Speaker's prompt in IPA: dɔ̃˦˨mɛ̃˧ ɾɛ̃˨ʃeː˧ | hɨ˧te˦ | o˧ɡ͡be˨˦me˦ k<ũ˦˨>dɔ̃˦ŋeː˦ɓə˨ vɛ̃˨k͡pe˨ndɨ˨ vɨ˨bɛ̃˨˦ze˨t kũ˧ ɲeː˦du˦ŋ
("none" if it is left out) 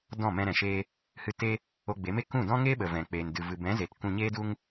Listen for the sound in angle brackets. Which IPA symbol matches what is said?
ũ˦˨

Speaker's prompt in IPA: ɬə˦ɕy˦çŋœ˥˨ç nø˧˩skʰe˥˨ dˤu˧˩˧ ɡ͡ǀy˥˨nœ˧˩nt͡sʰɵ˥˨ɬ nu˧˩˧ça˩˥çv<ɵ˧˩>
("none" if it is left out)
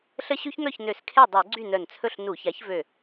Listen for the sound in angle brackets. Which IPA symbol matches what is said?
ø˧˩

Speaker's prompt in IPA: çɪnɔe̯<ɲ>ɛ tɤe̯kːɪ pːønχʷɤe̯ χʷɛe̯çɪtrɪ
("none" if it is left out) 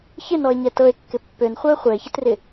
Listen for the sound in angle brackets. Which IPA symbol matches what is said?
ɲ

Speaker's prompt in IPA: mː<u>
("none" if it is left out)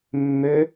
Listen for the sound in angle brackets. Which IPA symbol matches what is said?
ø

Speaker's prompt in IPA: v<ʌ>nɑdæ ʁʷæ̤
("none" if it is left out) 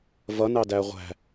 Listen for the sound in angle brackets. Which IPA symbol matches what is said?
ʌ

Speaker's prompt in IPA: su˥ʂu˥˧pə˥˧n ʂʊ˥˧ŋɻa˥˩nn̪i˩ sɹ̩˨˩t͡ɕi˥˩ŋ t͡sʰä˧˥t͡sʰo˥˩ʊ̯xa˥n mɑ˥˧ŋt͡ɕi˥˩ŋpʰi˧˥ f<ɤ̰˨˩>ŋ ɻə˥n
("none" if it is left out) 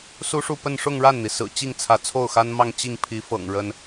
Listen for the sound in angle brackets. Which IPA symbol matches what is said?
ɤ̰˨˩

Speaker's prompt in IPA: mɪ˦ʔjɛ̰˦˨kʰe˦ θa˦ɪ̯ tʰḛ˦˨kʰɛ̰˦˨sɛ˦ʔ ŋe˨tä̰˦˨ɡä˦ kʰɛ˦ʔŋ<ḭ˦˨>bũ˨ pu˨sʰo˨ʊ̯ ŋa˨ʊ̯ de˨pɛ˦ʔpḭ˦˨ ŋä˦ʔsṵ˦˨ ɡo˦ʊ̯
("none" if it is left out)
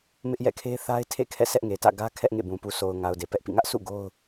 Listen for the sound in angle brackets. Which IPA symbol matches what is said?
ḛ˦˨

